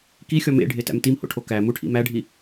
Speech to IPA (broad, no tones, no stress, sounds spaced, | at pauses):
k i xʲ ɒ m ḛ ɖʱ e t æ̰ m t i m h o̰ ʈʰ o k æ m u ʈʰ ḭ m æ ɖʱ i